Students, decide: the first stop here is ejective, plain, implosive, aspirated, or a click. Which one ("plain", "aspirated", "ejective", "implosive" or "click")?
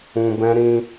plain